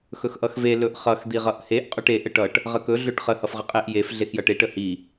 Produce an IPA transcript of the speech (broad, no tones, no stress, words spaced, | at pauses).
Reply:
xɵxʔʌxve lɵʔχʌx d̪iʁʌʔheʔ qʼɵʈe ʔəʈʌʈ | ʁəkɵ ɮɵʈχə hʌfʁəqʼeʔ jef ɮexjʌʈe ʈəhi